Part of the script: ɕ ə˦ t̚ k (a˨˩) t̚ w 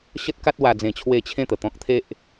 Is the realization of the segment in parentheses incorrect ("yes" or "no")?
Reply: yes